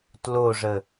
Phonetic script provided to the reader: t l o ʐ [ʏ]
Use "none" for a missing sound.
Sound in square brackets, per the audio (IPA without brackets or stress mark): ə